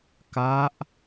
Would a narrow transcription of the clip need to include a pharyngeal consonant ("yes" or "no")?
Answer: no